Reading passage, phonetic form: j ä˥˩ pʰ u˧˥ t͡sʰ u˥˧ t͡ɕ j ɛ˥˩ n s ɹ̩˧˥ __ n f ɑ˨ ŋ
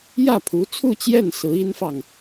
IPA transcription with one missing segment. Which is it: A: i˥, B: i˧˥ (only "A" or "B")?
A